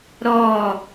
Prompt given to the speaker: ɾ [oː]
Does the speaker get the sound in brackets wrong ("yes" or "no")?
yes